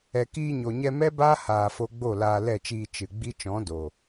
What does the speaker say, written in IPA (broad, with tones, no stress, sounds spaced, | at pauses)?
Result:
ɛ˨ k iː˧ ɲ o˨ ɲ ɛ˧ m ɛ˦ b aː˦ h aː˧ f o˦ ɡ͡b o˦˨ l aː˧ l ɛ˦˨ t͡ʃ iː˧ t͡ʃ ɨ˨ ɡ͡b i˦ t͡ʃ ɔ̃˨˦ d o˨